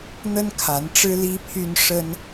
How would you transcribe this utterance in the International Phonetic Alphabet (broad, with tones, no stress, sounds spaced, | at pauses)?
n̪ ə˥ n kʰ a˧˥ n ʈ͡ʂ ɻ̩˥ l i˥ pʰ y˥ n ʂ ə˥ n